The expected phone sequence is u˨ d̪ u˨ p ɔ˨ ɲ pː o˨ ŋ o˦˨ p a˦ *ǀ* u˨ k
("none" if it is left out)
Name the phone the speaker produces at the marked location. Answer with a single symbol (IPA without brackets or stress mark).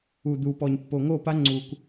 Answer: ŋ͡ǀ